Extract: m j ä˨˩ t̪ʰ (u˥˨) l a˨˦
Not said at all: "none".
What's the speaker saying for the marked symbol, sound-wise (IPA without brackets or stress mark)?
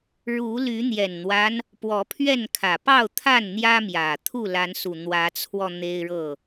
u˥˨